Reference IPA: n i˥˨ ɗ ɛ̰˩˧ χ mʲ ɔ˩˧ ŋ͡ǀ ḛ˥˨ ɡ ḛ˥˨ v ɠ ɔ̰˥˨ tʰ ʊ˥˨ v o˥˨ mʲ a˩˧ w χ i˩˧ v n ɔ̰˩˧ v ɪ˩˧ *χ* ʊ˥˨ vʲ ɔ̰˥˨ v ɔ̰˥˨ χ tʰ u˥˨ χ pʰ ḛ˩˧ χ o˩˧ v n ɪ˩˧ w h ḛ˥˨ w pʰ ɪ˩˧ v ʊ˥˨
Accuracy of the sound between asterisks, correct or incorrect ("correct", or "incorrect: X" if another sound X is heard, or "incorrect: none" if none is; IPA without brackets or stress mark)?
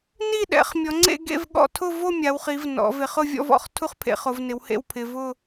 correct